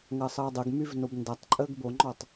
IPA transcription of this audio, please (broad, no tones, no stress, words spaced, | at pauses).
ŋɐsˤəːdˤəɡmyv nobndatˤǃʼəːɡ boŋ͡ǃɔtˤ